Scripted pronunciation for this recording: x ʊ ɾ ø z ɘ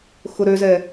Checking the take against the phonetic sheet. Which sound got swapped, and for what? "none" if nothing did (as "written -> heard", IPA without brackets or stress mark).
ɘ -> ɛ